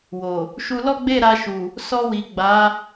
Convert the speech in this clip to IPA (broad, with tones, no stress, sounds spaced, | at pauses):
w o˨ | ʃ u˧ l ɔ˦ ɡ͡b e˦˨ ɾ a˧ ʃ u˨ | s ɔ˧ w i˨ ɡ͡b a˨˦